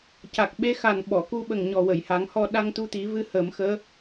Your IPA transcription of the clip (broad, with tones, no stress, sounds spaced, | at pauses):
c a˨˩ k̚ ɓ e˧ x a˨˩ n ɓ ɔ˨˩˨ k u˧ ɓ ə˨˩ ŋ ɲ ɔ˨˩ w ə˨˩˨ j h a˨˩˦ ŋ h ɔ˧ ɗ a˧ ŋ t̪ u˧ t̪ i˨˩˦ v ɨ˧ h əː˨˩˦ m x əː˧˥